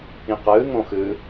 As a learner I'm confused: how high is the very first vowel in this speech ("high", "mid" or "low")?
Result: high